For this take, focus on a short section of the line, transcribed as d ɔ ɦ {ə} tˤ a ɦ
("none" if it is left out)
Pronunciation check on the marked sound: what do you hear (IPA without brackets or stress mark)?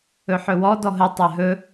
ə